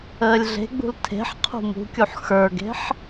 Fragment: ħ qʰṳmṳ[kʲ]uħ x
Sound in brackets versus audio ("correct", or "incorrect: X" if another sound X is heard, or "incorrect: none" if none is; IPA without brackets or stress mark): correct